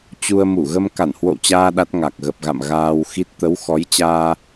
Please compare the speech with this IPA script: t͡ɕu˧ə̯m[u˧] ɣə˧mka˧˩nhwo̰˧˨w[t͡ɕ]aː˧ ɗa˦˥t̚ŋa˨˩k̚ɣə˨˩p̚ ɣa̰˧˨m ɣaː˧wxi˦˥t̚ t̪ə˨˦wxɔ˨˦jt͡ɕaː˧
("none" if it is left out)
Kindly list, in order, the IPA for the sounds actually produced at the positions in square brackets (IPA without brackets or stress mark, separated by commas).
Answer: u˧˩, t͡ɕ